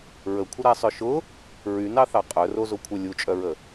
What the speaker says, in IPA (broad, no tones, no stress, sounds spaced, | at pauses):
ɹ ə kʷʰ ə ɾ a sˤ œ ʃ ʊ | ɹ y n ɑ θ ɑ qʼ œ r o z o kʷʰ œ lʲ u t͡ʃʼ œ ɹ ə